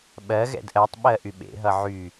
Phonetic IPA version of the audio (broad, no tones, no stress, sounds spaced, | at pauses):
ɓ ɜ ɣ ɛ̰ d ʔ ɜ tˤ ɓ ɜ ʔ y ɓ ḛ ɦ ʌ ʕ y